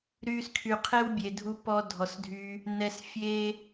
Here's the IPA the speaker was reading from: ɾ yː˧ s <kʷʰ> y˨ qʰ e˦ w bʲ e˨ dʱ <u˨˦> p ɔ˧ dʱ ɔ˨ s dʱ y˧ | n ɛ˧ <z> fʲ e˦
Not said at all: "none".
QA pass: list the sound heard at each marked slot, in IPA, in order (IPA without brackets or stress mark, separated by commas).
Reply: kʰ, u˧, s